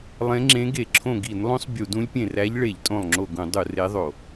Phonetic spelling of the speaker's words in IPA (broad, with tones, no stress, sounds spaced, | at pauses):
lˠ ẽ˧˥ ŋ͡ǁ ẽ˧˥ ɡ e˧˩˧ ǁʰ õ˧˩ ɡ i˧˩˧ n lˠ õ˧˥ sˤ bʲ u˧˩˧ d ũ˧˥ lʲ pʲ ẽ˧˩ r æ˧˥ ʎ ɭ e˧˩˧ ʎ tʼ õ˧˩ lˠ ŋ͡ǁ o˧˩ ɡ ũ˧˩˧ dˤ u˧˩˧ r e˧˥ ðˤ o˧˩˧